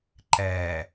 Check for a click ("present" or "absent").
present